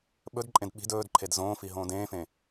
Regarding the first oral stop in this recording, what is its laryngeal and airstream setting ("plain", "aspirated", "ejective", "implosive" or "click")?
implosive